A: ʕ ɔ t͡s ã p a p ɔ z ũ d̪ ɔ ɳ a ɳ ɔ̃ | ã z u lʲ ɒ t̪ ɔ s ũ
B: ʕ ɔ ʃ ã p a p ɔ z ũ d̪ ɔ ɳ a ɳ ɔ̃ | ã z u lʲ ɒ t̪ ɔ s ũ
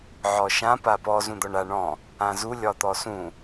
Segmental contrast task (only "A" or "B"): B